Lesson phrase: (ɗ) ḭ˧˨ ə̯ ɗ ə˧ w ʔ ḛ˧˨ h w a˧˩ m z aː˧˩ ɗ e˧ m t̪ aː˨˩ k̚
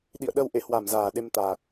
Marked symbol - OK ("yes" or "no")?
yes